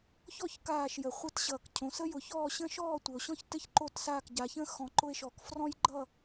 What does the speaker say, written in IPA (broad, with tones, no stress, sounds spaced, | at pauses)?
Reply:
ç ɔ˦˨ ç k aː˦˨ ʃ j ə˨˩˦ χʷ ɘ˦˨ t ɕ ʌː˨ k cʰ õ˨˦ s ə˦ j ʊ˨˩˦ ç ɔː˦˨ ɕ ə̃˦ ʃ ɔː˦˨ tʷ ɘ˨ o̯ ɕ ɔ̃˦ ç t ɘ˦ ç ǃ o˦˨ t s aː˦˨ k ɟ a˨˦ ç ə̃˦ x ɔ̃˨˦ ǃ ʊ˦ e̯ ʃ ɔ˨˦ k f r ɔ̃˦ j ɡ͡ǃ ʌ˦˨